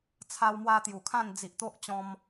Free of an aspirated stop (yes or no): no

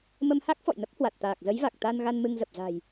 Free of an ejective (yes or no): yes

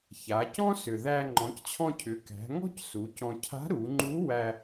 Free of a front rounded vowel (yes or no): no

